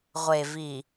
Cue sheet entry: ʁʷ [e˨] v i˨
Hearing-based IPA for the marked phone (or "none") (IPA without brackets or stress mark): e˨